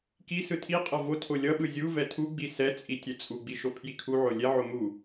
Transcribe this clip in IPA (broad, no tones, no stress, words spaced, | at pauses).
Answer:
ki sɯtʰiqʼʌ votʰo lʲʌɓɯ zʲuvɛ tʰu ɡ͡bisɛt͡sʼi tʲɛt͡sʼuɡ͡bi ʃopʰjikʰuʕo lʲɛʕo mu